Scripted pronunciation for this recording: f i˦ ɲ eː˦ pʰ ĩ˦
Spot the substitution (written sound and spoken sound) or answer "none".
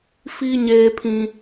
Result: none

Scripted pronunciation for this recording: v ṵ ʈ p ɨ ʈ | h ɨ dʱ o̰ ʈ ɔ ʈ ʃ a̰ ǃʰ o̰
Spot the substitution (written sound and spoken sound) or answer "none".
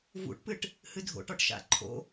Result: none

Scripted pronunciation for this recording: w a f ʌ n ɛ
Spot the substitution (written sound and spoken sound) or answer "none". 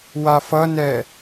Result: none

